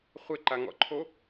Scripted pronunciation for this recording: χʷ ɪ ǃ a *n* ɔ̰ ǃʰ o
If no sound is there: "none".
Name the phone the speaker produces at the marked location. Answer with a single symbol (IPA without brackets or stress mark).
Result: ŋ